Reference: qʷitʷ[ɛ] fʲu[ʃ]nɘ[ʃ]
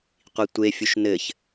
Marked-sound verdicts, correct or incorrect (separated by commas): incorrect, correct, incorrect